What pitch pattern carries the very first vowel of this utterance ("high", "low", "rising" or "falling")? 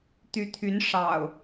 rising